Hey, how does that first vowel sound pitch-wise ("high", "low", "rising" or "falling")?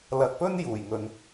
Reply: low